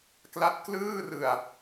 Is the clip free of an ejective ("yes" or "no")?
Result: yes